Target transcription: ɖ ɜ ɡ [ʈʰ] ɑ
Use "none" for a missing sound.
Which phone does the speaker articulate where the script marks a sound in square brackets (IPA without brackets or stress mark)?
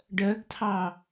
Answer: tʰ